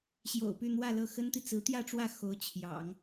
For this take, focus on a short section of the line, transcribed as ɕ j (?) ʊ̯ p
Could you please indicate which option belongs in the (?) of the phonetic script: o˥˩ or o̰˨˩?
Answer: o̰˨˩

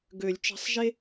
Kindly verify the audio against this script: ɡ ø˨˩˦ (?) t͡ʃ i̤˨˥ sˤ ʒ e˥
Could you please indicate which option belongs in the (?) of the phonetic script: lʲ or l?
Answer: lʲ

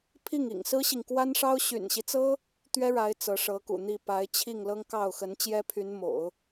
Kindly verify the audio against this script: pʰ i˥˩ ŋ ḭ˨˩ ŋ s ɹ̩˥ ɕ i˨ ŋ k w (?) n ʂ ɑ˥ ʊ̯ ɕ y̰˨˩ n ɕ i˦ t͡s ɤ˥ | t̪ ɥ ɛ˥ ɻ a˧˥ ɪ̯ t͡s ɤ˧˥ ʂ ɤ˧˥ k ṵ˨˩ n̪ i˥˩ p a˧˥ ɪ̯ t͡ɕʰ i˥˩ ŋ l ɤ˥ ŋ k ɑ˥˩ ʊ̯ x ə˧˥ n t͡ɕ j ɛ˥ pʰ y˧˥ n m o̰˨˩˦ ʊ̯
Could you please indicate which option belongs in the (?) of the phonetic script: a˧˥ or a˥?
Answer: a˥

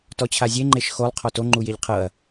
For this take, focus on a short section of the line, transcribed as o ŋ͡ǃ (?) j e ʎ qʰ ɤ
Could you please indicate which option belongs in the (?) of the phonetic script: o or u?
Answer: u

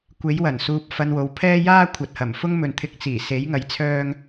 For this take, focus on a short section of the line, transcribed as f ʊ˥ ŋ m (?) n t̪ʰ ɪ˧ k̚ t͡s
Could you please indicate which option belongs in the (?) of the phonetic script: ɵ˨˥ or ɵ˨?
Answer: ɵ˨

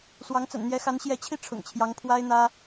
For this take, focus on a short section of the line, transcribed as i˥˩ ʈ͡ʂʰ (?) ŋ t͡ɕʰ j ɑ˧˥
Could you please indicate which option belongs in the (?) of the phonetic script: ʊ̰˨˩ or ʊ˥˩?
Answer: ʊ̰˨˩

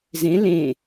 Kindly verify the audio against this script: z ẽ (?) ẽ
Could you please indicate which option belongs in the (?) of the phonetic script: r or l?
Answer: l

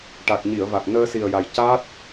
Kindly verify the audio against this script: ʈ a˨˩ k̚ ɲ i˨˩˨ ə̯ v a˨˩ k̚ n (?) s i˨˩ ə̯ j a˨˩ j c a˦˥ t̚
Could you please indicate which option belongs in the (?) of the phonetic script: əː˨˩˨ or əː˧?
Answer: əː˧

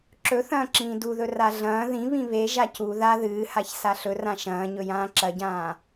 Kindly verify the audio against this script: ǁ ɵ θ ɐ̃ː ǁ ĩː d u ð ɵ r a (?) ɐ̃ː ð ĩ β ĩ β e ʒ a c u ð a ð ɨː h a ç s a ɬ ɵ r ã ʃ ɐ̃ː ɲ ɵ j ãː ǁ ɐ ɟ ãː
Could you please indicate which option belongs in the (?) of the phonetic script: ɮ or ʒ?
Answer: ɮ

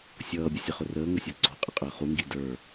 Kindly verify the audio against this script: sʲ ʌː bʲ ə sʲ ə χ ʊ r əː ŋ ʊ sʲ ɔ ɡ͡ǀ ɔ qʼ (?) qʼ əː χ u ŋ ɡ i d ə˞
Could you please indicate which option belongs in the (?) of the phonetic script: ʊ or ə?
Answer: ə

